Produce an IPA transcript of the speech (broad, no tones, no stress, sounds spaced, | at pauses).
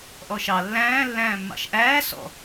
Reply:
ʔ ɔ ʃ ɑ lː æ̃ː lː æ̃ː mː ɑ̰ ʃ ʔ æː s ɔ̰